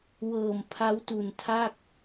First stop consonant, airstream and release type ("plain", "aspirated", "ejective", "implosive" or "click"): aspirated